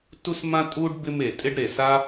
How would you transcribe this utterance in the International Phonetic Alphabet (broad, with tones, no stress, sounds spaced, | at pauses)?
t u˥ s m ã˥ tʼ u˥ ɖ b ɪ˦ m e˩ tʼ ɪ˦ ɖ ɾ e˨ s a˥